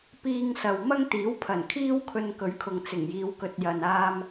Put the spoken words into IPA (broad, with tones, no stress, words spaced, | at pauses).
piː˧ŋsɐ˨w mɐ˥ŋt̪iː˨˥wpʰɐ˨˩nkʰiː˥w kʰɵ˧nkɵ˨˥ɥkʰʊ˨ŋ t͡sɪ˨˩ŋjiː˨˧w kɵ˨t̚jɐ˨naː˧m